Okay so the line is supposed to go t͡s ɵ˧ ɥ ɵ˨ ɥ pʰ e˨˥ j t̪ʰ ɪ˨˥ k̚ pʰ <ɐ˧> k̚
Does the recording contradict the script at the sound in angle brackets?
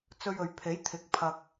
no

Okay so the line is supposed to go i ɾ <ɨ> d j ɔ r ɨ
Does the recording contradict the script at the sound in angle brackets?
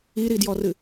yes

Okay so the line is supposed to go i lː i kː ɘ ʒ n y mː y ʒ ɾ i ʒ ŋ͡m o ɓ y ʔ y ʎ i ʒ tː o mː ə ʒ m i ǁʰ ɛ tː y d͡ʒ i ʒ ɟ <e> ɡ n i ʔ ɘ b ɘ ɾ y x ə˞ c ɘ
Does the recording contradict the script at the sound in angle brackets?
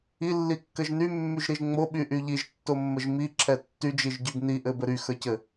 yes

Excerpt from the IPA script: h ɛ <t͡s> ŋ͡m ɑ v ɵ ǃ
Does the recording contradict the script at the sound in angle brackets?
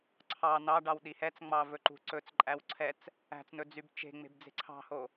no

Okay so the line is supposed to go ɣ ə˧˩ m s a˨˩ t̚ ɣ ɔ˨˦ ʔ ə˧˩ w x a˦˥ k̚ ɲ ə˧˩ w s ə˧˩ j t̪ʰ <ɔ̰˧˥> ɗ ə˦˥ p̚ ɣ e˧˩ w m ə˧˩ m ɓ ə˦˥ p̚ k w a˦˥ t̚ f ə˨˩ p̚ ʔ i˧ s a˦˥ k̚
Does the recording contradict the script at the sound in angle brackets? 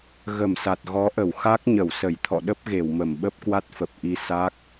yes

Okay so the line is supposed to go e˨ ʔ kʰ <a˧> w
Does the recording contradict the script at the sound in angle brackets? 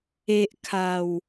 yes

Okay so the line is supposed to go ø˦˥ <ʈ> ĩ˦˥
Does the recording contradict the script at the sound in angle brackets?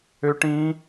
no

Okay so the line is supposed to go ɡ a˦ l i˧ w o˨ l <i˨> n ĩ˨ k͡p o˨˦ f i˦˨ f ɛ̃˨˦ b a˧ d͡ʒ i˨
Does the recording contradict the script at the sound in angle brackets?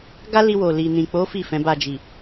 no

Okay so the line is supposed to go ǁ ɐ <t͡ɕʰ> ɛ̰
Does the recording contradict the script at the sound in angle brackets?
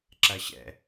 yes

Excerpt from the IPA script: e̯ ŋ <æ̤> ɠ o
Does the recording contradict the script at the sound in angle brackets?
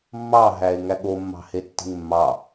yes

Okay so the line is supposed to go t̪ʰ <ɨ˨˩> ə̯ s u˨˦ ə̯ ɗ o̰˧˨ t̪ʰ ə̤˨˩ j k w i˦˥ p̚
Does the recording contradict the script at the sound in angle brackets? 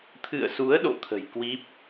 yes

